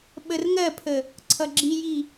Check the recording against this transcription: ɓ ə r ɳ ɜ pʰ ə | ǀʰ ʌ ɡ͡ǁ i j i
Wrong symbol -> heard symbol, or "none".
ɳ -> ŋ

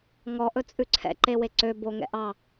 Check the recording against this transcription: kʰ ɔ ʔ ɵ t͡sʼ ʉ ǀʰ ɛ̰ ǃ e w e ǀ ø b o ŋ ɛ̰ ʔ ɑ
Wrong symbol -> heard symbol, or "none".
kʰ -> ŋ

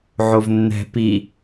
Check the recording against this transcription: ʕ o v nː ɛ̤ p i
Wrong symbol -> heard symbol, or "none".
none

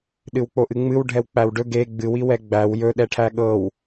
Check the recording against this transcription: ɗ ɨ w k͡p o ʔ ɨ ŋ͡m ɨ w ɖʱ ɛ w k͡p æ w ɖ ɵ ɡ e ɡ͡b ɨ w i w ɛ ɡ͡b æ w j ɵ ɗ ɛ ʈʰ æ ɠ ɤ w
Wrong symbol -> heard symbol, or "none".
none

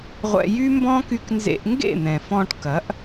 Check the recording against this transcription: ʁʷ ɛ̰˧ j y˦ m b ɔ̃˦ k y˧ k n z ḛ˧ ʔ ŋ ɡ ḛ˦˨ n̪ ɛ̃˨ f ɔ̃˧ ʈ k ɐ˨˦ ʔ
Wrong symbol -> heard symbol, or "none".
none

